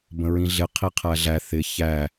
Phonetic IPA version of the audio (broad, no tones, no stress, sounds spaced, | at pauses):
b ə̃ ɹ ĩ ɮ ɪ qʰ i qʰ æ ɮ æ θ ɪ ç æ